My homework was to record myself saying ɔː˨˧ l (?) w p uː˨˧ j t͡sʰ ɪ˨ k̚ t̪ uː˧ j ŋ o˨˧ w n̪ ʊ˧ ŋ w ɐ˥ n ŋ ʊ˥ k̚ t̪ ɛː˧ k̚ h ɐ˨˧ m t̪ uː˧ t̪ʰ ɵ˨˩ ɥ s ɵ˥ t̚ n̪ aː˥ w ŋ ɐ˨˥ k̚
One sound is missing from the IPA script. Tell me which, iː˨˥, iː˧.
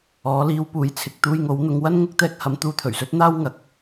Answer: iː˧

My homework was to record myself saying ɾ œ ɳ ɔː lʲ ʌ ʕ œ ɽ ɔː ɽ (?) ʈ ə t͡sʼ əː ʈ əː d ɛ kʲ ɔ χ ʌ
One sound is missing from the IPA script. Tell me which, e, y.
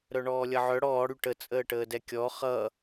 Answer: y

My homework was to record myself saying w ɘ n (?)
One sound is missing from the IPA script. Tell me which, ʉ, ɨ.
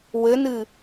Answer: ɨ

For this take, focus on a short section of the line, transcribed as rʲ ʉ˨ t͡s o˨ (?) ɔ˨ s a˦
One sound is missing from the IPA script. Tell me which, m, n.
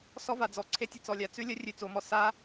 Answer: m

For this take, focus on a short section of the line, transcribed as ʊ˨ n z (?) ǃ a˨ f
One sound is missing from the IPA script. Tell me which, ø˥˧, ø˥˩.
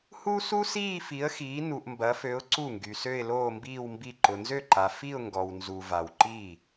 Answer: ø˥˩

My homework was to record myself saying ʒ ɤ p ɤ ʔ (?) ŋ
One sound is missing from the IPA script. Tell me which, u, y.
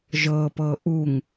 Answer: u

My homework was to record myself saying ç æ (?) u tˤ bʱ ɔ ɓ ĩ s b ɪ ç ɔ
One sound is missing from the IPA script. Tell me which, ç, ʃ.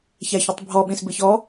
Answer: ç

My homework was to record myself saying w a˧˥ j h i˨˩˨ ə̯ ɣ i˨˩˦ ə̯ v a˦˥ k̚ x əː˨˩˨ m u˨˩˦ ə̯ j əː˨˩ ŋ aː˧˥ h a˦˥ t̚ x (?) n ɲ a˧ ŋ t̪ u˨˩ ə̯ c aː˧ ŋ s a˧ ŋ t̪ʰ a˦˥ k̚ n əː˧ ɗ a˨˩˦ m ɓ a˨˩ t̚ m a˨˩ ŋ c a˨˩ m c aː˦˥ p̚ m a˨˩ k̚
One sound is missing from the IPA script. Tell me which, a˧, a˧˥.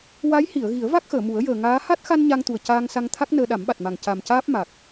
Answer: a˧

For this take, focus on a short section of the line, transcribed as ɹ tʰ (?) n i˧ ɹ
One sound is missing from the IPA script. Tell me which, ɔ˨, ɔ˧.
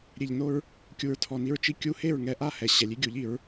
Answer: ɔ˨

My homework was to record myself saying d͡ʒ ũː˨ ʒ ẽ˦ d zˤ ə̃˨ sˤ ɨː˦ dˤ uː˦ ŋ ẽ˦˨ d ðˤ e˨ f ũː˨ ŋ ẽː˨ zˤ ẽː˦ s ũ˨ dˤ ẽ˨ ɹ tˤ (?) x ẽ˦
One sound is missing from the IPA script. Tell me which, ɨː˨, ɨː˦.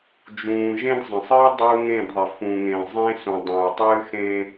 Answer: ɨː˦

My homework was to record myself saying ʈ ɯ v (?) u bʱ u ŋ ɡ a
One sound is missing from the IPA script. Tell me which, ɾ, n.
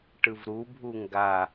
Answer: ɾ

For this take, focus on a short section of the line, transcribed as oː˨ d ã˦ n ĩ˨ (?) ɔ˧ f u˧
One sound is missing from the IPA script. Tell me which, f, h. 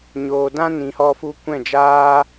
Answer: h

